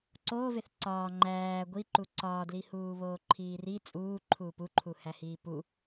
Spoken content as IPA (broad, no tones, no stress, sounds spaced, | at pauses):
ǀ oː v e θ ǀ ɒː ŋ͡ǃ æː ɡʷ i ǃ u ǀ ɒː d l i h uː β oː ǃʰ iː r i t͡sʼ uː ǃʰ uː p u ǃʰ u h æ h iː p u